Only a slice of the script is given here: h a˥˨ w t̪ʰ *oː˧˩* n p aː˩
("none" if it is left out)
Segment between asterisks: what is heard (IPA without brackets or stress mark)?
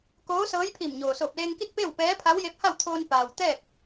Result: oː˧